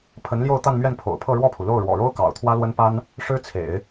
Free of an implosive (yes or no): yes